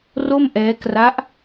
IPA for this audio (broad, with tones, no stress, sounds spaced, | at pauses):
r o˥˩ m ʔ ɛː˦˥ k r a˦˥ ʔ